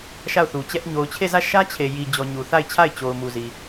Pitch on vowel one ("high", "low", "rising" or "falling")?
falling